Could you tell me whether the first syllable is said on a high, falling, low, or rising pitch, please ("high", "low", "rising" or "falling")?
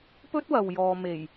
high